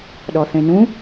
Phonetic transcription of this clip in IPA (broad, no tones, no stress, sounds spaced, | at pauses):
ɗ ɔ θ ẽ n ũ